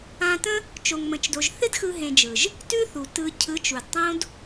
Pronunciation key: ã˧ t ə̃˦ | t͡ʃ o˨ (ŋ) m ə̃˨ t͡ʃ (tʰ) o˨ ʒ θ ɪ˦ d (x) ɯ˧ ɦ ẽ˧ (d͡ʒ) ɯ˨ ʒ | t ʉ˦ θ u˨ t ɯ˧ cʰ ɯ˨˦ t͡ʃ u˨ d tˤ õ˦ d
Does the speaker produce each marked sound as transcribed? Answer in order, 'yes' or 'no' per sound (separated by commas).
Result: yes, no, yes, yes